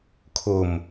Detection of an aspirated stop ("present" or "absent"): present